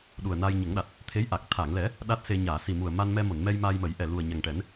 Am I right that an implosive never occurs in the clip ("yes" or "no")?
no